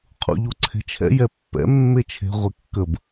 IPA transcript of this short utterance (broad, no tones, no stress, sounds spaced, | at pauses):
qʰ ṵ ʎ u ǀʰ e̤ t͡ʃʰ ɛ̰ j ɛ pː ɛ̰ mː e t͡ʃʰ e̤ ʁʷ e kː ə b